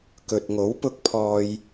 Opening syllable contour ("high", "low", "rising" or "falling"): low